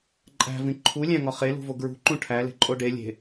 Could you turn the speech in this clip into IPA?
ǃʼ æ̤ v ĩ ǃʰ u lʲ æ̃ ŋ ɒ χ e l ṳ v o ɡ ɹ ṳ ǃ ũ ʈʰ æ l e̤ ǃʼ o ɖ e lʲ e̤

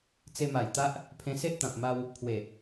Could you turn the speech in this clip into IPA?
t͡s e˧ m a˨˩ j t̪ a˦ ʔ | pʰ ẽ˧ s e˦ ʔ t̪ ã˨ p̚ m a˧ w | pʰ w e˨˩

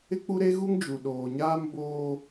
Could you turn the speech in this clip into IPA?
ɪ˦ k͡p u˦ ɾ e˦ ɣ u˦ ŋ d͡ʒ u˨ ɗ oː˨ ɲ aː˦ m b oː˦

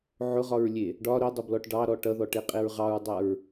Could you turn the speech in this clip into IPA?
ʕ ʊ ʁ ɒ ɹ lʲ e | ɖ ɒ ɾ ʊ dˤ ʊ b l ɔ ʈ ɖ ɑ ɾ ɔ ʈ ʌ ð ɔ ʈ e qʼ e ɹ ʁ ɑ ɹ dˤ a ɹ

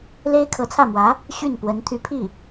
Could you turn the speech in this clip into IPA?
l e˥ ɪ̯ kʰ ɤ˧˥ t͡sʰ ä˥˩ m w ä˧˥ | ɕ y˥˩ n p w ə˧˥ n t̪ʰ y˧˥ pʰ i˥˩

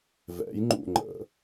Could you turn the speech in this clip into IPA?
v ɛ̰ j ŋ͡ǃ ṵ ŋ͡ǃ ə̰

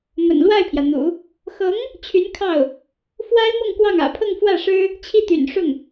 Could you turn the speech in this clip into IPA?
m ə̰˨˩ n l w a˥˩ ɪ̯ pʰ j ä˩ n̪ ṵ˨˩˦ | x ɤ˧˥ ŋ | t͡ɕʰ y˧˥ n kʰ ɑ˥˩ ʊ̯ | f w a˥ ɪ̯ m ɤ˥˧ ŋ k w ɑ˥˩ ŋ ä̰˨˩ pʰ ɤ˥˧ ŋ f w ä˥˩ ʂ ɻ̩˥ | t͡ɕʰ i˥˩ t̪ y̰˨˩ n ʂ ʊ˥˩ ŋ

